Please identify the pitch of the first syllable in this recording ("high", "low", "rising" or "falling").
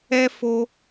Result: high